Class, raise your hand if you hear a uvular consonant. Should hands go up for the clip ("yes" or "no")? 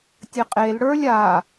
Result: yes